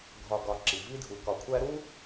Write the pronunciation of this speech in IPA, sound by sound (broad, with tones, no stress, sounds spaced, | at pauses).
ɡʱ ɒ˨ ɡ ɒ˨ ǁ i˩ v i˦ dʱ u˨ k ɒ˨ kʷʰ æ˦ ɾ u˥